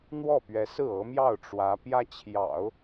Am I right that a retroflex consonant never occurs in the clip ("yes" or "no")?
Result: no